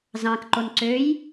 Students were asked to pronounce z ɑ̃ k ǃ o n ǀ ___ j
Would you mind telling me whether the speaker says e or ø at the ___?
ø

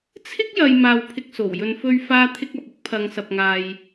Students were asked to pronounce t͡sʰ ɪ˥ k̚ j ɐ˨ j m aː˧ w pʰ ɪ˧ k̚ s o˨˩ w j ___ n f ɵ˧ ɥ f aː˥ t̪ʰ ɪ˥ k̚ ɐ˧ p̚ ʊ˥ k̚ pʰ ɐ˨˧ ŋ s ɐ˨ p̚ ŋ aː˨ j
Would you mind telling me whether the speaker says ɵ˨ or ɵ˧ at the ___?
ɵ˨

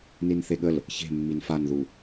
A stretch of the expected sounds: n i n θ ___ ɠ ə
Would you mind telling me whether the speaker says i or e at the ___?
e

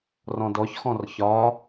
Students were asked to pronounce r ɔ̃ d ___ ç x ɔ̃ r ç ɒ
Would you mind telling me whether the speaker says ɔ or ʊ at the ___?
ɔ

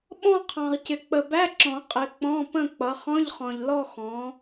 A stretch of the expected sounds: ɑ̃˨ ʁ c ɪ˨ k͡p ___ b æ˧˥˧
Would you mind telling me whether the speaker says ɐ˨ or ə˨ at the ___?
ə˨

